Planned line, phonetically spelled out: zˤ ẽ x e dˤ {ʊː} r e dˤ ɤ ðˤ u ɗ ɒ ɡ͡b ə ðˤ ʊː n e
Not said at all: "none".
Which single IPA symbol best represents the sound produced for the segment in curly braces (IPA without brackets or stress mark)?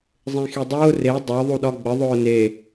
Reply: ʊː